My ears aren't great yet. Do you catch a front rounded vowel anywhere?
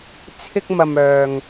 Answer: yes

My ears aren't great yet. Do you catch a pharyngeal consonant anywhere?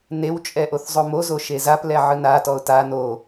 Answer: yes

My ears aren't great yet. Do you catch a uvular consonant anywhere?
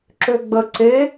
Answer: no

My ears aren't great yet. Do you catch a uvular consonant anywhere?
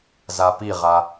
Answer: yes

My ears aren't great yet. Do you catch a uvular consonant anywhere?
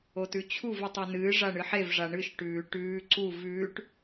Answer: no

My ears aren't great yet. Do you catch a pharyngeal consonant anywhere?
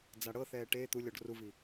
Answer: no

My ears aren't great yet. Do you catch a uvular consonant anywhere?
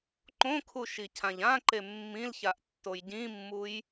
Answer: no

